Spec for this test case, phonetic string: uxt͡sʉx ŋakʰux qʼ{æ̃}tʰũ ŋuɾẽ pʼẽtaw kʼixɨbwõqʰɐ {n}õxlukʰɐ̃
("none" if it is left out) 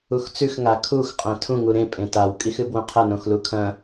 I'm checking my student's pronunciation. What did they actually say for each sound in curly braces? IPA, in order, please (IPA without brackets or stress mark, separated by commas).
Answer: ã, n